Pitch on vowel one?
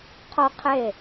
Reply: high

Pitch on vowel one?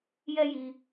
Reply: high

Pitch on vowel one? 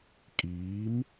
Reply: rising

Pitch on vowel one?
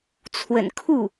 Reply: low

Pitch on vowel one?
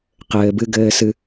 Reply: low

